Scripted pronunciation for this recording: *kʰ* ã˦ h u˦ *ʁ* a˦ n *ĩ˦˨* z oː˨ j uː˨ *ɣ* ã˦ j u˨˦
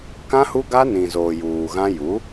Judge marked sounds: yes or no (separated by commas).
no, no, no, yes